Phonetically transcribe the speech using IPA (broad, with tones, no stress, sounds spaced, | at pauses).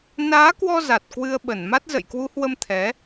n aː˨˦ k w ɔ˧ z a˨˩ t̚ k w ɨ˧ ə̯ ɓ ə˧˩ n m a˦˥ t̚ z ə̰˧˨ j k w u˨˦ h w ə˧ m t̪ʰ ɛ˨˦